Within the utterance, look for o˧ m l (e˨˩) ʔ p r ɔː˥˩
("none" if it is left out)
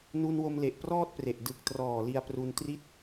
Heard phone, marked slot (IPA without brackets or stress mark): e˨˩